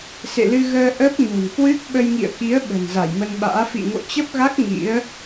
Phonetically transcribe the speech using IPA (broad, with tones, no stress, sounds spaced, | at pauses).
s ḛ˧˨ l ɨ˧ ɣ əː˧ ʔ ə˦˥ p̚ ɲ o̤˨˩ n k w ɨ˦˥ k̚ ɓ ə˧ j ŋ ḭ˧˨ ə̯ k i˨˦ ə̯ ɓ ə̤˨˩ n z a˧˩ j m ə˧ n ɓ a̰ː˧˥ f ḭ˧˨ ŋ o̰˧˨ t͡ɕ ə˦˥ p̚ ɣ a˦˥ k̚ ŋ ḭ˧˥ ə̯